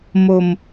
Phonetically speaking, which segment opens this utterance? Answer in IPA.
m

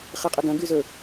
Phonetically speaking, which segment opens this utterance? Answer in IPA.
χ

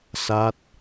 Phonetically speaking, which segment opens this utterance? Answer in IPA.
s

